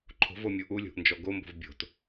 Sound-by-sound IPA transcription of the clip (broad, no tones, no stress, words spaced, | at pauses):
ǃʰo̤vomʲu ʔulʲo̤ʔnd͡ʒɔ ɡombo̤v bʲo̤t